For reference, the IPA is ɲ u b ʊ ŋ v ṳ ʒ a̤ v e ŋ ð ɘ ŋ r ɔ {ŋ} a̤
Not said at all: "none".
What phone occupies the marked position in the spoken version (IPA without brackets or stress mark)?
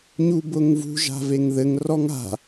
ŋ